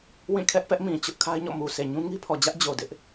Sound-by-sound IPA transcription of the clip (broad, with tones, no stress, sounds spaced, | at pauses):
w ĩ˦˨ kʰ ɛ˦ ʔ p ɛ˦ ʔ m ĩ˨ t͡ɕ ʊ˦ ʔ kʰ a˦ ɪ̯ ɲ ɔ̰˦˨ m u˨ s e˨ ɲ ũ˦ ŋ i˦ pʰ ɔ˨ d͡ʑ ä˦ ʔ d͡ʑ o˨ d ɪ˦ ʔ